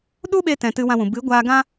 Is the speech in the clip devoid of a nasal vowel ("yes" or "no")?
no